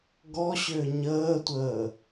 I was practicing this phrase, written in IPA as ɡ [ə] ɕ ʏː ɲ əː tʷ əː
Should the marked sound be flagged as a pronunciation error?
yes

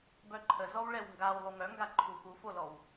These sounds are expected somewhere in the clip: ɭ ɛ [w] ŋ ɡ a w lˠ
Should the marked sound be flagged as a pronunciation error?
no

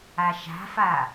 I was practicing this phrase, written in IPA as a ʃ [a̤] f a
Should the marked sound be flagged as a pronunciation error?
no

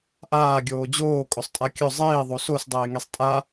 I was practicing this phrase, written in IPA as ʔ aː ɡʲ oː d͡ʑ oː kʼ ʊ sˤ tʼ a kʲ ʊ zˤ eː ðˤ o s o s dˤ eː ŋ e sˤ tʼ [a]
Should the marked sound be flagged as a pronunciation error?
no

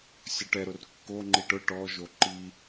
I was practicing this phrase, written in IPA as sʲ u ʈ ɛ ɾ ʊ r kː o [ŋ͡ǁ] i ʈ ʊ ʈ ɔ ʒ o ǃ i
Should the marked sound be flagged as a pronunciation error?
yes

